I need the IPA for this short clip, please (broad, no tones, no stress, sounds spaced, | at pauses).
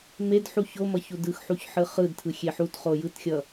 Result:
m e d ħ u ç o m ʌ ç u d ɯ x ħ u ç ħ ɯ χ ɯ d tʰ ɯ xʲ e ħ u t χ o j ɯ t xʲ ʌ